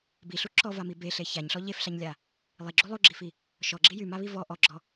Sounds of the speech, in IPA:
b i ɬ u ǁ ɔ v a m i b e ɬ e ç a ɲ ɬ ɔ ʎ e f ɬ a ɲ lʲ a | lˠ i ɡ͡ǁ u lˠ u ɡ͡ǁ i f i | ʃ ɔ ɡ͡ǁ i j y m a β i v ɔ ʔ ɔ ɡ͡ǁ ɔ

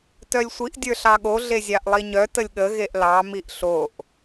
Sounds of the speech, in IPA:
t œ lʲ sʷ i ʔ dʲ ə˞ ɬ ɑ ɠ o ɮ e zʲ ɑ ʔ lˠ i ɲ œ t ə lʲ ɠ ə ɣ e ʔ l ɑ m i ʔ ɬ o ʔ

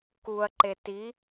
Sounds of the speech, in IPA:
k u ɐ̯ ǃ e t i

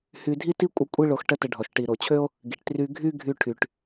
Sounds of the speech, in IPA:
h y˧ dʱ i˥ t i˥ kʷʼ ə˧ kʷʼ i˥ ɭ o˧ x ʈ ə˥ t ə˧ ɖʱ ɔ˩ ʃ ʈ i˩ ɾ o˩ t͡ɕʰ ø˥ o̯ | ɡ i˩ ʈ t r y˧ ɡʱ y˥ ɡʱ y˧ ʈʰ y˩ ʈ

